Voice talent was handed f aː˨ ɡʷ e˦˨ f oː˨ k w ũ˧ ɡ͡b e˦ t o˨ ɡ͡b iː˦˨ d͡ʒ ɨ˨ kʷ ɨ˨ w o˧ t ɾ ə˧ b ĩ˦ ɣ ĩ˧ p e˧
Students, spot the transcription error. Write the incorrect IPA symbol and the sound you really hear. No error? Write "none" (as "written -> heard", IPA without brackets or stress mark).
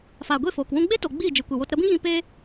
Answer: none